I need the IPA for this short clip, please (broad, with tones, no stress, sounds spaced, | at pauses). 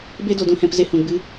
b e˧ d o˨ d ũ˨ h ɛ̃˨ p z e˧ h ũ˨ ɡ͡b ɨ˦